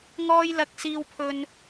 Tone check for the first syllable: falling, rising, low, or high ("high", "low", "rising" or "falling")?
high